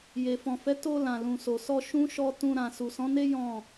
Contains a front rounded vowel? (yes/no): no